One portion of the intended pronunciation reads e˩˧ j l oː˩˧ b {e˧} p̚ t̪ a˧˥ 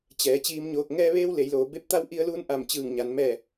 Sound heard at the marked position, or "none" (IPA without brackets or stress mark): e˧